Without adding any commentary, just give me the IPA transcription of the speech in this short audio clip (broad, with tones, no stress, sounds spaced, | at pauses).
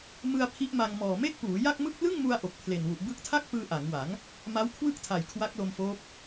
m ɯ˧ a̯ pʰ i˦˥ ʔ m a˧ ŋ m ɔː˨˩ m e˥˩ k̚ p uː˩˦ j a˥˩ k̚ m ɯ˥˩ k̚ l ɯ˥˩ ŋ m u˧ a̯ ʔ o˨˩ k̚ pʰ l e˨˩ n w u˨˩ ʔ b ɯ˦˥ k̚ tʰ a˥˩ k̚ p ɯː˧ ʔ a˩˦ ŋ w a˩˦ ŋ | m a˦˥ w kʰ w ɯ˥˩ k̚ tʰ a˨˩ j kʰ w a˦˥ k̚ l o˧ m f oː˦˥ p̚